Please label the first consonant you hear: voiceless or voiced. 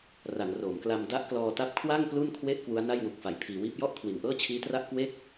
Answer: voiced